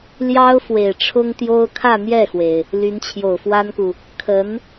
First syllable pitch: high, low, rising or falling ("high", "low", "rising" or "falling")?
high